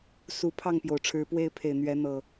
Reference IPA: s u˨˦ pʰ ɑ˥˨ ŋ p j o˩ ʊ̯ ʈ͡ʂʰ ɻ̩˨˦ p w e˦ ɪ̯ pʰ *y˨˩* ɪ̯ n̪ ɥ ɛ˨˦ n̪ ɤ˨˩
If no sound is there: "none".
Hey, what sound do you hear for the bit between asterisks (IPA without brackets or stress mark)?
e˨˩